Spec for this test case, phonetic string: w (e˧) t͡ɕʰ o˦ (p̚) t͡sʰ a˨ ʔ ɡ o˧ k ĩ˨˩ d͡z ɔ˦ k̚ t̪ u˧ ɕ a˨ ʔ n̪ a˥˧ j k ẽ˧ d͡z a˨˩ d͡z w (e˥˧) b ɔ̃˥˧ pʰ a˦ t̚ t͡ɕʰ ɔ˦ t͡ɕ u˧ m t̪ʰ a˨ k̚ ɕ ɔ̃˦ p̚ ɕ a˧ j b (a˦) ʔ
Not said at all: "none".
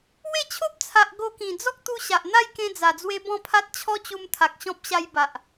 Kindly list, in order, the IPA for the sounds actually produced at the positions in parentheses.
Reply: e˥˧, p̚, e˧, a˨

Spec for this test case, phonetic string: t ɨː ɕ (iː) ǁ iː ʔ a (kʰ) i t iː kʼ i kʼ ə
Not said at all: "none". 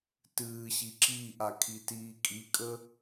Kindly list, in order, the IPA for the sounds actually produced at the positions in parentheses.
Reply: i, kʰ

